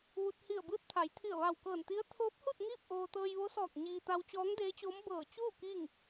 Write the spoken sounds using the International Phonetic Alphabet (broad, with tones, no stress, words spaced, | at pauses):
ʋu˧t̚ hi˧˩ə̯bɯː˧˥t̚t̪ʰa˩˧j t̪ʰi˧˩ə̯ʋa˧˩wkɤː˧˩nt̪i˧˥ə̯ t̪ʰoː˧˥p̚hu˥˨t̚ ŋiː˥˨p̚ʔoː˧ t̪ɤː˧jʋo˧˥sɔː˧˩k̚ ɲiː˧ t̪a˧wt͡ɕɔː˧˥ŋdeː˧˥t͡ɕoː˧˥m bɤː˧˩t͡ɕuː˥˨ kiː˥˨ŋ